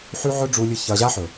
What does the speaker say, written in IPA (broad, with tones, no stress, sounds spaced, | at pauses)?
ħ ʉ˦ ʕ ɵ˦ ɖ͡ʐ u˧ lʲ ɨ˧ ç ɐ˧ ʑ a˦ ħ ɵ˨